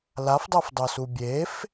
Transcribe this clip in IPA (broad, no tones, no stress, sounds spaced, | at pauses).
l a f dˤ ɛ f dˤ o s u bʲ e f